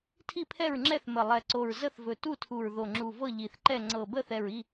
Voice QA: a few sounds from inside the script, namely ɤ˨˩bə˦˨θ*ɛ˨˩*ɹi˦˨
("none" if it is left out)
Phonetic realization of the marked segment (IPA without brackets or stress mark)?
ɛ˨˩